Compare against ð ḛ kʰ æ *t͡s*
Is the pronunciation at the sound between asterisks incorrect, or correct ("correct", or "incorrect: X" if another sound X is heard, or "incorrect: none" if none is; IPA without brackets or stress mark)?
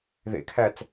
correct